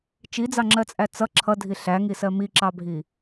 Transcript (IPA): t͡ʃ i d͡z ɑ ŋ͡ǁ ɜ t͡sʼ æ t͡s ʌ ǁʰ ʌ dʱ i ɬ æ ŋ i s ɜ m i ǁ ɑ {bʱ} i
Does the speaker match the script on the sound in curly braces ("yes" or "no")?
yes